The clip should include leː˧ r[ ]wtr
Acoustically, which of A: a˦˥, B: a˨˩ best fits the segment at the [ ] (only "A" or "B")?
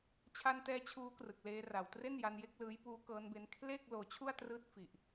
B